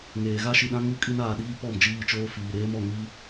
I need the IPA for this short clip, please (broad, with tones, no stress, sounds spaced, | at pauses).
ŋ eː˨ ɣ a˦ ʃ i˨ ɗ ã˦ ŋ u˦ kʼ i˦ n aː˨ ɗ iː˦ p ɔ˦˨ m d͡ʒ iː˦˨ t͡ʃ oː˦ f iː˨ ɾ eː˦ m ɔ˨ ŋ iː˦